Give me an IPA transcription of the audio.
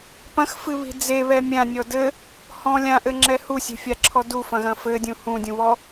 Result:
p ɐ̃ x f ɨ β i̤ d͡z e β ɛ mʲ ã nʲ ɔ d ɘ | h ɔ̃ lʲ ã ʔ ɘ ŋ͡ǁ ɛ h u sʲ e̤ fʲ a ǁʰ ɔ d u f ɐ̃ ɣ ɐ̃ f ɘ dʲ ũ h ũ dʲ ũ β ɔ

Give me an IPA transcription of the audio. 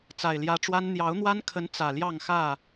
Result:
t͡s a˨˩ ɪ̯ l j ä˨˦ ʈ͡ʂ w a˦ n n̪ j ɑ˨˦ ʊ̯ n̪ w a˦ n kʰ ə˨˦ n t͡s ä˨˩ l j ɑ˥˨ ŋ x ä˥˨

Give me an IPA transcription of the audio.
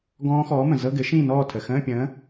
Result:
ɡ ɔ̃ː˦˥ x ɔː˨˥ m ə̃˩ z ɤ˧˥˧ ɡ ɘ˨˥ ʃ ĩː˥˨ n ɔː˥˨ tʰ ə˩ x ə̃ː˧˥˧ pʲ ə̃ː˨˥

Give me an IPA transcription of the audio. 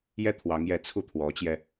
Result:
j ɛ˥ t̪ʰ w ɑ˧˥ ŋ j ɛ˧˥ t͡sʰ u˥˩ t̪ʰ w ɔ˧˥ t͡ɕ j ɛ˧

